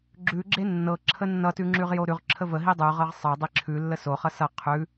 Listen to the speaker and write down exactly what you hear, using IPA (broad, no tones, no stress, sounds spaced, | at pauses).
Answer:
ɡ͡ǁ ʉ ɡ͡ǁ e nː ɤ ǁʰ ə nː ʌ t ʉ ŋ͡ǁ ʉ ʁ j o ɾ ʉ ʁ ǁʰ ə v ə ɦ i dˤ ʉ ʁ ɤ ʁ sˤ ɤ dˤ i ǁʰ ʉ lː ə s o χ ʌ s ʌ qʰ ʉ